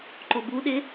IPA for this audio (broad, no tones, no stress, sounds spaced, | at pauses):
ǃ o b u ɗ ɪ